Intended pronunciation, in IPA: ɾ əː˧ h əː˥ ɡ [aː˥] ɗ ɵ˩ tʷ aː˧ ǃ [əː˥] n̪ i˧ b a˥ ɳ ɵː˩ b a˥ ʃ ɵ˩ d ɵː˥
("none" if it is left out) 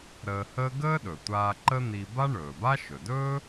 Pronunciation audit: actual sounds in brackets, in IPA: əː˥, ə˥

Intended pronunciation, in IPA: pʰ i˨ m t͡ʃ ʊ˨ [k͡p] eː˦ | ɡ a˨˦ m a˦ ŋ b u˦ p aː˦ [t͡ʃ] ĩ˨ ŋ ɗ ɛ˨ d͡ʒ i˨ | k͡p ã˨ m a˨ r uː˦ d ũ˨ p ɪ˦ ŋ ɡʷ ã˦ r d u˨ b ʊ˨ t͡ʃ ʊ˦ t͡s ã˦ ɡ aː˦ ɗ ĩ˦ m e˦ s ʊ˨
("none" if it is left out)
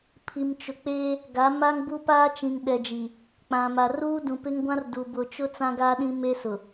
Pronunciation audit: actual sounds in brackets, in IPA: k͡p, t͡ʃ

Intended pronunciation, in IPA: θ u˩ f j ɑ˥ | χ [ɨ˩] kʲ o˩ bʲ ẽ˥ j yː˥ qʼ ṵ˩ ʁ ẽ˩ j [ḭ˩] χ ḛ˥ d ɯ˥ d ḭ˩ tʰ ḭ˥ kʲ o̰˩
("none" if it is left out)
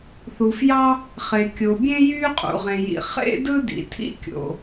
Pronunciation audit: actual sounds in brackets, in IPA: e˩, ḭ˩

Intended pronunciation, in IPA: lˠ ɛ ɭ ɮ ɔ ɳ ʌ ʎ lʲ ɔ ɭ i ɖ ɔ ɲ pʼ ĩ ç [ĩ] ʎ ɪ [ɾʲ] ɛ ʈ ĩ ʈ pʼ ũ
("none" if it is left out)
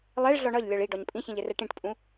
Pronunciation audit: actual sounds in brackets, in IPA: ĩ, r

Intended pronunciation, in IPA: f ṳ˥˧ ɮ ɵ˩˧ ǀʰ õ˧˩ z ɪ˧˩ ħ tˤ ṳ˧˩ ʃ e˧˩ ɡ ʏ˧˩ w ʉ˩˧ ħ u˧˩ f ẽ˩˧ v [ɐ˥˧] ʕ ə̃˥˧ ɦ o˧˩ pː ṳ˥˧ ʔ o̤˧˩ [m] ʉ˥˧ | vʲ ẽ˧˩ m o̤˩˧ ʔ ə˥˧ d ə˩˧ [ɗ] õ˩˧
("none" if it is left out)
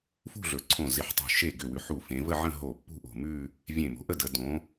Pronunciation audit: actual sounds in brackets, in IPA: ə˥˧, m, d

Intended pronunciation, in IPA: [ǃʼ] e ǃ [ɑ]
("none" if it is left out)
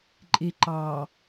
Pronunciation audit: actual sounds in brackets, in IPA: ǃʼ, ɑ

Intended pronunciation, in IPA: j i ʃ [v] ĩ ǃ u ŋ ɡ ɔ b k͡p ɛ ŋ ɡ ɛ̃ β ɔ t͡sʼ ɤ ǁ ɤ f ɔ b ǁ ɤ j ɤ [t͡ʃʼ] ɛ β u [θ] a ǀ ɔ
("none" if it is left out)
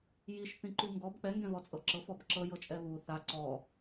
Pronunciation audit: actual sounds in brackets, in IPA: θ, t͡ʃʼ, θ

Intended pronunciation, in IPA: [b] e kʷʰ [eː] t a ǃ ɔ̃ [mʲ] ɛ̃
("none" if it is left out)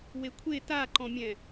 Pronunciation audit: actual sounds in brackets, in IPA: w, e, mʲ

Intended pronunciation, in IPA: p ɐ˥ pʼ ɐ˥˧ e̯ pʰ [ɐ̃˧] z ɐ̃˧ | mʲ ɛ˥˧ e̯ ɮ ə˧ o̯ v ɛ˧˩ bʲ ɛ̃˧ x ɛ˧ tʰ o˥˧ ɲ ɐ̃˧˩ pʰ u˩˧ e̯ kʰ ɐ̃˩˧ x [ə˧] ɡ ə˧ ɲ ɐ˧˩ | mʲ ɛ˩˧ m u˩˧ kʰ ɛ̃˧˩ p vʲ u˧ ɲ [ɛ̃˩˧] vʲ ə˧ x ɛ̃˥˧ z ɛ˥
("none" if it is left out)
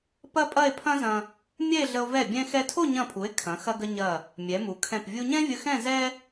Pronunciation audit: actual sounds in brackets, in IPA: ɐ̃˥, ɐ˧, ɛ̃˥

